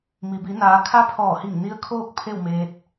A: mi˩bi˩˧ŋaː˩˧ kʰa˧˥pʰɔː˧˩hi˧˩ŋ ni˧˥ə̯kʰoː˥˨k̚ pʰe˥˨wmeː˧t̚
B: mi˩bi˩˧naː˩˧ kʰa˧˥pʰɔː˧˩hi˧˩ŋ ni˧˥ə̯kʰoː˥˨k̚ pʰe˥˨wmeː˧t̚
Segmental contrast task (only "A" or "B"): B